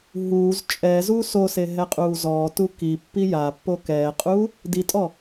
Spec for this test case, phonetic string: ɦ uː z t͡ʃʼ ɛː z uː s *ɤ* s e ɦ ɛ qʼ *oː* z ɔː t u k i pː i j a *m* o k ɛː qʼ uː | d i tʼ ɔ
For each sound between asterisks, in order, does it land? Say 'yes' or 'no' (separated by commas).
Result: no, no, no